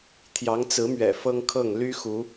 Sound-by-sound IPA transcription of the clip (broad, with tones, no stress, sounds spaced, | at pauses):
t̪ʰ j ɑ˨˦ ŋ t͡s ɹ̩˨˦ m ɥ ɛ̰˨˩ f ɤ˦ ŋ kʰ ɤ˥˨ ŋ l y˦ x u˨˦